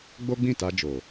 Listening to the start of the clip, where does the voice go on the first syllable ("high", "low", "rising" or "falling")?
high